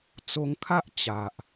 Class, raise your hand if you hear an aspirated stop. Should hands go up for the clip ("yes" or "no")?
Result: yes